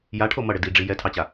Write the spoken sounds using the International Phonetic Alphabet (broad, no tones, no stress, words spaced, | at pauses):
jaʈʰo mʌɽɘ diɖ͡ʐi jɛtʰɑt͡ɕa